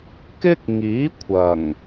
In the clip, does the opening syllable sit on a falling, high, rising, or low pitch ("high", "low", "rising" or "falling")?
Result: high